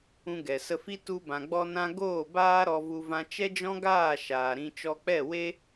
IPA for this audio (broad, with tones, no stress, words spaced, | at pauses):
ũ˧ɡɛ˨sə˧fi˦ tu˧bã˨ ɡ͡bɔ˧nã˧ ɡoː˦˨baː˦ɾɔ˧vu˧ vã˧t͡ʃɛ˦d͡ʒɔ̃˦ɡaː˦˨ ʃaː˨ɾĩ˧ t͡ʃɔ˧k͡pɛ˦˨we˦